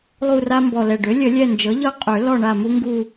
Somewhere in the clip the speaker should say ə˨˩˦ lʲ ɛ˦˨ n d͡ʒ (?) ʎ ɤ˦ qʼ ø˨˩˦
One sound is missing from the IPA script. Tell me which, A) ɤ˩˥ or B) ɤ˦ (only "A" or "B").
A